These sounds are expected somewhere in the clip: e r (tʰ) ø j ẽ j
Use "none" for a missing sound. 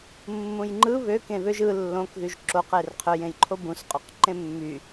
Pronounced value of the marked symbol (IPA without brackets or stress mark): qʰ